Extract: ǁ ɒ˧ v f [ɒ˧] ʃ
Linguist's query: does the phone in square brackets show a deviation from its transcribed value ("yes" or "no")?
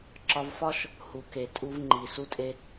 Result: yes